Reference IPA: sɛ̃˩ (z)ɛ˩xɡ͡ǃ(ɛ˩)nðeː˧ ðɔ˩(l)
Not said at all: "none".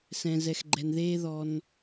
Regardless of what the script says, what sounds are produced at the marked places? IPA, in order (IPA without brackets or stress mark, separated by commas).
z, ɛ˩, n